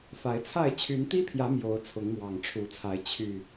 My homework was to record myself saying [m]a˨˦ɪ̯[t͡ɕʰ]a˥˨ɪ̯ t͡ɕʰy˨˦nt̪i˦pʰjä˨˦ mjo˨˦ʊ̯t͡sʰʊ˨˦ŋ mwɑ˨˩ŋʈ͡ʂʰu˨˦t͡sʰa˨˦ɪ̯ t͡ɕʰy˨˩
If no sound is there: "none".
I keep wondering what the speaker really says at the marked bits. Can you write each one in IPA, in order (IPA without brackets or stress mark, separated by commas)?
f, t͡sʰ